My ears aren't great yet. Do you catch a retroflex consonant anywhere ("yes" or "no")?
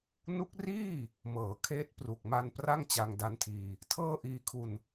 no